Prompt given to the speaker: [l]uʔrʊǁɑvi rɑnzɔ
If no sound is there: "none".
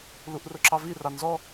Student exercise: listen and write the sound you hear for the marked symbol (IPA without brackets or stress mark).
l